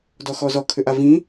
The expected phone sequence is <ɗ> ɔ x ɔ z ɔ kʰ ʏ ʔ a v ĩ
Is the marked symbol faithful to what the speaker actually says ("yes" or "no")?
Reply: no